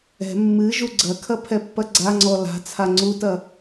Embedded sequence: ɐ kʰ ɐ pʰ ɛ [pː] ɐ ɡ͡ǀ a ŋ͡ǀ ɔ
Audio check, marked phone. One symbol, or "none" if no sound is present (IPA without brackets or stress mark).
pː